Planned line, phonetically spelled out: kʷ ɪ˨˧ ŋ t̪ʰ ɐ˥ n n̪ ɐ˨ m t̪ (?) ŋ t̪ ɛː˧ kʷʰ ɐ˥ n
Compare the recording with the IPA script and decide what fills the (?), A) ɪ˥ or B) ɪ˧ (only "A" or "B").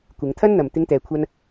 A